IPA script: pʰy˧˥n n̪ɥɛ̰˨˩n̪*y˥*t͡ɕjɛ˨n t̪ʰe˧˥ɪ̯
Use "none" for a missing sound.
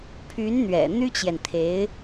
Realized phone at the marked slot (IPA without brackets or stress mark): y˥